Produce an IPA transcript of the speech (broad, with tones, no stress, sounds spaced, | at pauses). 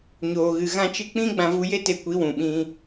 ɲ oː˨ ɣ ɨ˨ ɣ ã˧ t͡ʃ ɨ˧ k͡p ĩ˦ ɡ͡b ã˧ v u˧ j e˦ t e˧ kʷ i˨˦ w ũ˨ ɓ ĩ˧